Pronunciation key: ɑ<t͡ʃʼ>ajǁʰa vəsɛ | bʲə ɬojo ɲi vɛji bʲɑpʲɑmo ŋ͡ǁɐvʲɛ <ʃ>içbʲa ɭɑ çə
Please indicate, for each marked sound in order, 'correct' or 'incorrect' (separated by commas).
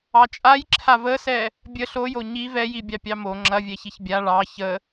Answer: correct, incorrect